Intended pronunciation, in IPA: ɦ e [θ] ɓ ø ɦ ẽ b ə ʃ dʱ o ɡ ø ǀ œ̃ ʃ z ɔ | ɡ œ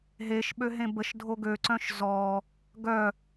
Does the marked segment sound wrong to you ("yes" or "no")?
yes